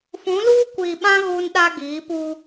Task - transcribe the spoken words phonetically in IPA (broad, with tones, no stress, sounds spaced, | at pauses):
f ũ˨˦ l uː˦ kʷ iː˨ ɓ ã˦ ɣ uː˦ n ɗ a˦ ɡ iː˨˦ p u˦